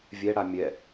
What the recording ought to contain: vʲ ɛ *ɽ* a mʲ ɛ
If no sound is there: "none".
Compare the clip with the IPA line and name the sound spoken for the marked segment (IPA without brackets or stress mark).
ɽ